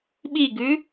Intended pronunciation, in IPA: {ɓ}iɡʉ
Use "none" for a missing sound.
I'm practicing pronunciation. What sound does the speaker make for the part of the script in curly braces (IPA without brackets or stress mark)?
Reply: ɓ